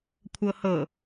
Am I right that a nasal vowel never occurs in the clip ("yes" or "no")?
yes